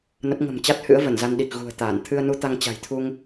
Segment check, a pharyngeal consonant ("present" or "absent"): absent